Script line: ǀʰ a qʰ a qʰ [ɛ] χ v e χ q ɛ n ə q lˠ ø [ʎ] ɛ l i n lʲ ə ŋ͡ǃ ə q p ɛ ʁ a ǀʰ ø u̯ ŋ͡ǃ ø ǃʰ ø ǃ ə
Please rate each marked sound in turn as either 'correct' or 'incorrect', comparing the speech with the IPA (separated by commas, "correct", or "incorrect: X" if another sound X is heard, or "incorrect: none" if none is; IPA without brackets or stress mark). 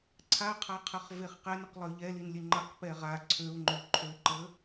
incorrect: ə, correct